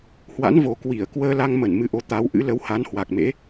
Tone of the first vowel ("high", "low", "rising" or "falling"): rising